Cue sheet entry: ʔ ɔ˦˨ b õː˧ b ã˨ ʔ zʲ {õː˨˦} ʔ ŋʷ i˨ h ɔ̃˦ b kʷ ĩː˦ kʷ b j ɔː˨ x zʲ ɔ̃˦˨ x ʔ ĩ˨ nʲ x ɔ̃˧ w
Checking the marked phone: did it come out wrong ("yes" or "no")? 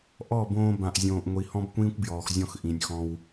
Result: yes